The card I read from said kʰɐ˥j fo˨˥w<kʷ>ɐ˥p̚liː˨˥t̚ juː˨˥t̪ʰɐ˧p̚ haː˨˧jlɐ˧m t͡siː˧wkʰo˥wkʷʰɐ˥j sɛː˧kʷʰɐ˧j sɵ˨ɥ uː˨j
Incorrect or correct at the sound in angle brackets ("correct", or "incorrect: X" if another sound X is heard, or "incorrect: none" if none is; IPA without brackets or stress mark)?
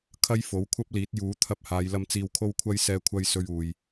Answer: incorrect: kʷʰ